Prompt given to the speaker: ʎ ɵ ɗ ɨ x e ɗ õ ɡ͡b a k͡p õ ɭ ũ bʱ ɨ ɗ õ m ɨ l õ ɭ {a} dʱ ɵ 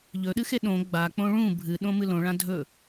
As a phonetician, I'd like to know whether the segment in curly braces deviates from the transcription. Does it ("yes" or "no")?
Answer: yes